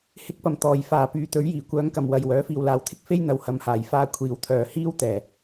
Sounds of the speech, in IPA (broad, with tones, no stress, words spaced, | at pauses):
hɪ˧k̚pɐ˨˩m t̪ɔː˨˩jfaː˨˩ pyː˨˧t̪ɵ˨˥ɥjiː˨˩ kʷœː˨˧ŋkɐ˨˩m wɐ˨jwœː˨˥ fiː˨wlaː˨wt̪ʰɪ˥k̚ fe˥jn̪ɐ˨w hɐ˧mhaː˨j faː˧ kʷʰiː˨˧wt̪ʰœː˨ hiː˥wt̪ɛː˨˩